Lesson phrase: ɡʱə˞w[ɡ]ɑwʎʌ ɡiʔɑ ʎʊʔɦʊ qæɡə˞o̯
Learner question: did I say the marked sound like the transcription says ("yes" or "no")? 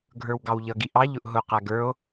yes